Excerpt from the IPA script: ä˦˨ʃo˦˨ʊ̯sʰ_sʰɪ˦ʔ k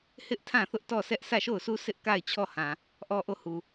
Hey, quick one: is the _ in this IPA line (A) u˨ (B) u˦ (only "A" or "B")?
B